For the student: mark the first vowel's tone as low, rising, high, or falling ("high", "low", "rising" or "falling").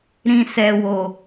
low